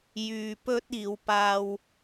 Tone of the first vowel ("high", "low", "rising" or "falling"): low